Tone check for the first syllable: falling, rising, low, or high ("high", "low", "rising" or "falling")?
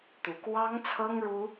rising